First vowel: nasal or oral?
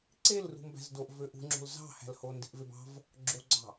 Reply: oral